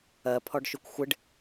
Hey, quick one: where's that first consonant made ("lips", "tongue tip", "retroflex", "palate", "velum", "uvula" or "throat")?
lips